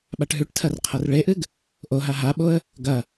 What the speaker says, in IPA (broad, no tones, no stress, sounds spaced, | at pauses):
ɓ a ʈ ɦ ʉ ʈ tʰ ɐ r qʰ ɐ r ɭ e ʔ ɨ ɡ | ʔ o ɦ a ɦ a ɓ o ə̯ | ɡ ɐ